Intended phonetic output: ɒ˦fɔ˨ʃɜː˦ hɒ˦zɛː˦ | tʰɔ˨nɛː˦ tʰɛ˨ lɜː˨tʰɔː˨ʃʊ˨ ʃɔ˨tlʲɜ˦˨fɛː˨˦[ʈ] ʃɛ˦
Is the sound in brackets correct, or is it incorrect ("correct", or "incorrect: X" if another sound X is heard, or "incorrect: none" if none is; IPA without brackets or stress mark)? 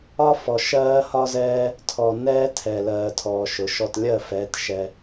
incorrect: t